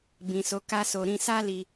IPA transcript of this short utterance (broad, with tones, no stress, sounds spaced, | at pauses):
b ĩ˨ s o˨˦ k a˦ s o˧ ɾ ĩ˧ s a˦ l i˧